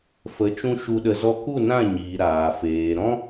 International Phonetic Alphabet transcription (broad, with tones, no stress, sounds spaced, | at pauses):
f ə˨˦ t͡ʃ ũ˧ ʃ u˧ ɗ ə˧ z ɔ˧ k u˦˨ n ã˦˨ ɲ iː˨ ɾ aː˨ f eː˨ ɾ ɔ̃˦